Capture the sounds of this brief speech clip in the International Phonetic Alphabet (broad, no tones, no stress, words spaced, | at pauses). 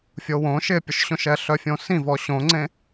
fʲowõ ʃɪpʲʊʃɕõʃɛ ɬœfʲõsĩvɔ ɕõŋ͡ǀẽ